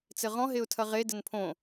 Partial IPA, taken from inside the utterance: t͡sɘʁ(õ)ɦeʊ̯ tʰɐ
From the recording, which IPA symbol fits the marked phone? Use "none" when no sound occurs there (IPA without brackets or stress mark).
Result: ɔ̃